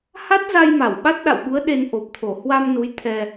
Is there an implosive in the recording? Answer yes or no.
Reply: yes